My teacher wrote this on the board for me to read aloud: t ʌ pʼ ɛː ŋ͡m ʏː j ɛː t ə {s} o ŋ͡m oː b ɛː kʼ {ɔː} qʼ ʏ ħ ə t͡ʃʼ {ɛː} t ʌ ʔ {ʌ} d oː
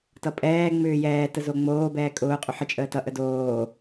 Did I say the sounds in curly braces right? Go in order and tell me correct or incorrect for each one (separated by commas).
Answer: incorrect, incorrect, incorrect, incorrect